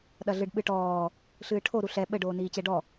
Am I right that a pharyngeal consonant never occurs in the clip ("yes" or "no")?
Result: yes